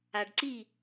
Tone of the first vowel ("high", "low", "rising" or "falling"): low